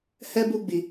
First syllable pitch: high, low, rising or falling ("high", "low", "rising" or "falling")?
high